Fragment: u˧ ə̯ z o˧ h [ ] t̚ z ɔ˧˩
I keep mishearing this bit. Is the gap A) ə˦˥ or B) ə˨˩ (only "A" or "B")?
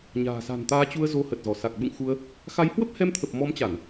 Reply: B